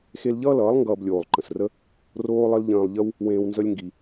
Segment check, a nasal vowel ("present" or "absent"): present